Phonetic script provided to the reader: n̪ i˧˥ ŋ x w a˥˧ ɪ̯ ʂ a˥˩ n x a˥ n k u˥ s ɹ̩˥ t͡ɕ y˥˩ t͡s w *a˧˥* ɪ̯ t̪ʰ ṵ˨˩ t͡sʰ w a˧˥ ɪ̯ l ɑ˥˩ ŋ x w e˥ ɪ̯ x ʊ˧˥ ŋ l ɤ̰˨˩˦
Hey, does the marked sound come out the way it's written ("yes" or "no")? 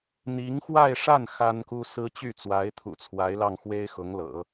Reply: yes